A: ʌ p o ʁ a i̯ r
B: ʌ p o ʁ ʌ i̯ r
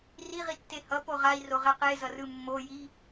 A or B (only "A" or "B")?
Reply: A